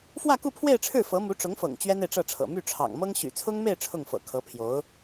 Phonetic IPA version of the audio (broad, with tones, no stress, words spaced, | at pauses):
fwä˥˧ku˥˧pʰwe˥˧ɪ̯ʈ͡ʂʰɻ̩˥˩ fɤ˧˥mu˧˥ʈ͡ʂʊ˧˥ŋfɤ̰˨˩ŋ t͡ɕɥɛ˥ne˨ɪ̯ʈ͡ʂɤ˥˩ʈ͡ʂʰɤ̰˨˩ my˥˩ʈ͡ʂʰɑ̰˨˩ŋmɤ˥ŋ ɕy̰˨˩t͡sʰʊ˥ŋme˥˧ɪ̯ ʈ͡ʂʰʊ˥˩ŋfɤ̰˨˩ kʰɤ˧˥pʰjo˧˥ʊ̯